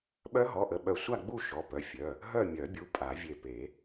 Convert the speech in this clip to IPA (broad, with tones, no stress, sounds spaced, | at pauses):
ɓ œ˦˥ ɦ ɔ˩˧˩ ʔ ə˧˩ ɓ œ˧˩ sʷ a˥˧ ɡ͡b u˥˧ ʃ ɔ˩˧˩ p œ˩˧˩ fʲ œ˩˧˩ | ɦ œ˥˧ mʲ œ˨˩˦ bʲ u˩˧˩ pʼ a˨˩˦ vʲ e˧˩ p e˨˩˦